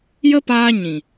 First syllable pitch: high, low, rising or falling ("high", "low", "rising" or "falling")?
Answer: high